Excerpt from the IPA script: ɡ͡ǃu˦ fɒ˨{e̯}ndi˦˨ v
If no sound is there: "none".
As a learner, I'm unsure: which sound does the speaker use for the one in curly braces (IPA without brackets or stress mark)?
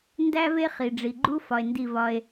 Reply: e̯